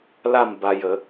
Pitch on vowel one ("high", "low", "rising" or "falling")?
falling